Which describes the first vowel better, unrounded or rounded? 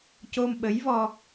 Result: rounded